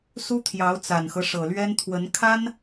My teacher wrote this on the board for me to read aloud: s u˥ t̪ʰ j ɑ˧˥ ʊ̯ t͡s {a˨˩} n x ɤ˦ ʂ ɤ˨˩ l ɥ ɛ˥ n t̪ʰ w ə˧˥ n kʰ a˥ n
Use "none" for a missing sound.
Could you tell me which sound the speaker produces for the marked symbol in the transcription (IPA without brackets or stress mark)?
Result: a˨˩